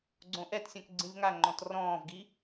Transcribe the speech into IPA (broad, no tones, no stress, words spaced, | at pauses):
ɡ͡ǀõʔɛtsʲɔ̃k ɡ͡ǀĩvŋaŋ͡ǃɔ̃t rɔ̃ːvɡi